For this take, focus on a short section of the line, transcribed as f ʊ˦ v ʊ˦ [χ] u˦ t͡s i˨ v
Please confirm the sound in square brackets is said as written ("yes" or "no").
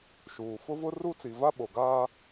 no